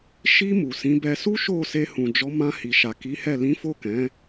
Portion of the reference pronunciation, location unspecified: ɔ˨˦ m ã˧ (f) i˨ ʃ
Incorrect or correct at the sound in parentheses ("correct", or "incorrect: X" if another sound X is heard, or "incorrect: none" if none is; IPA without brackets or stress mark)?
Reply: incorrect: h